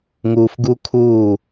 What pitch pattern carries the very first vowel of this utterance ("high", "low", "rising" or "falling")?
low